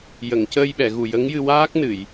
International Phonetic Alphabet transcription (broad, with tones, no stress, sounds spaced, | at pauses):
j ə˨˩˨ ŋ c əː˧ j ɓ ɛ˨˩˨ ɣ u˨˩ j ə˧˥ ŋ j ɨ˧ w aː˦˥ k̚ n ɨ˨˩˨ j